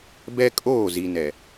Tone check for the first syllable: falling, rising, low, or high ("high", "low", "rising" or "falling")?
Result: high